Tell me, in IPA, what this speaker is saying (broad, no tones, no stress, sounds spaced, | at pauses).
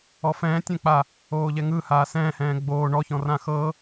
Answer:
ɔ f ɛ̃ː tʲ ɛ̃ k͡p a | oː ʎ ɛ ŋ ɯ h aː s ɛ̃ː h ɛ̃ː ɡ͡b oː ɳ ɔ ç ɔ̃ r ã x ɤ